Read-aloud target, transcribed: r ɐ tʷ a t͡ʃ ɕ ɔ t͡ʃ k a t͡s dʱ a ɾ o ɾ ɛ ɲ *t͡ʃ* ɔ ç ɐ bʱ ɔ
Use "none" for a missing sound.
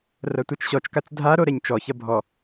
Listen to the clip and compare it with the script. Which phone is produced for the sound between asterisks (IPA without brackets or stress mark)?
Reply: t͡ʃ